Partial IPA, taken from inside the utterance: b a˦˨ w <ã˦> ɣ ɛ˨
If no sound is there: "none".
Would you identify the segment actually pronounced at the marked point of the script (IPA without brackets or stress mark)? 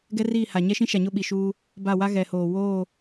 a˦